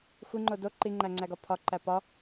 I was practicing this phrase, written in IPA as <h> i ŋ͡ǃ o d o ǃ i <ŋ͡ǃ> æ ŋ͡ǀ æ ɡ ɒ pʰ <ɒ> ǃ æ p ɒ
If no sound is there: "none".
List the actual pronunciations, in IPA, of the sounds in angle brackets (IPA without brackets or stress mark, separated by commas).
xʷ, ŋ͡ǃ, ɒ